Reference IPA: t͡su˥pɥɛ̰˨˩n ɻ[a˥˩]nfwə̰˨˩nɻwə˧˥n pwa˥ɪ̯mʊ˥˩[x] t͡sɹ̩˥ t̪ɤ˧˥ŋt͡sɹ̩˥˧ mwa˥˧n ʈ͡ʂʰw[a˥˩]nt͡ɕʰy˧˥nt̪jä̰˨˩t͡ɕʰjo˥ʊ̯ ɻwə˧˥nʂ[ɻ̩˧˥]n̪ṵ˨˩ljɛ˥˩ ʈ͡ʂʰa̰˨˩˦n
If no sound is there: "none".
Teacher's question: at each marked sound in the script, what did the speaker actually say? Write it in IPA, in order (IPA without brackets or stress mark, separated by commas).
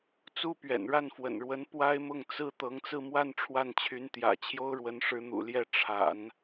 a˥˩, ŋ, a˥˩, ɻ̩˧˥